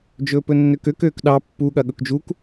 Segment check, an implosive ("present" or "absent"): present